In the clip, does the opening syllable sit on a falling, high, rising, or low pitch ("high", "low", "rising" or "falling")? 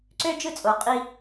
high